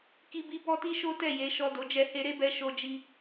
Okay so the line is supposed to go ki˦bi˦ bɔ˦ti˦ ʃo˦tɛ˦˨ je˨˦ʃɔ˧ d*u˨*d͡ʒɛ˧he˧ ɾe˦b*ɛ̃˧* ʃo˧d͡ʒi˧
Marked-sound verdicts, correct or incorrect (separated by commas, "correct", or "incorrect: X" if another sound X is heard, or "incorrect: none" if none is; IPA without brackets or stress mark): incorrect: o˨, incorrect: ɛ˧